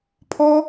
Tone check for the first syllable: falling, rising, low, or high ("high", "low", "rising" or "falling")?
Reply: high